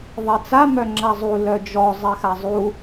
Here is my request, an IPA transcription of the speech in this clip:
ðˤ ɛ t͡s a m œ ŋ͡ǁ a zˤ u l œ d͡ʒ ɔ zˤ ɛ x a zˤ u

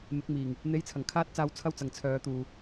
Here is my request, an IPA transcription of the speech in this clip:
m ɪ˨˥ k̚ m iː˨˩ ŋ | n̪ e˧ j t͡sʰ ɐ˨˩ ŋ kʰ aː˥ t̚ t͡s aː˧ w t͡sʰ ɐ˥ w t͡s ɐ˨ ŋ t͡sʰ œː˨˧ t̪ uː˨

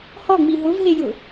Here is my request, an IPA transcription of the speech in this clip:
h ɔ ŋ͡m i ɦ ʊ v ɦ e j ʊ

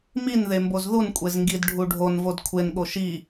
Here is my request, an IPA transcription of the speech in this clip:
m i n ð e m b o z ð u n kʷʼ e z ŋ ɡ i d ɖʱ u ɖʱ o n v o d kʷʰ e n ɠ o ʃ i

